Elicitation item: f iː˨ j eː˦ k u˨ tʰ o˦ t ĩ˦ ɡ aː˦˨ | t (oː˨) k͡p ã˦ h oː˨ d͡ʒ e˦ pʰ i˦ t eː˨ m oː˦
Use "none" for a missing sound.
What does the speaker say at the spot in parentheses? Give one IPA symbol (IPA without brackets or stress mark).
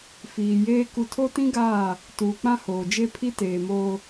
uː˨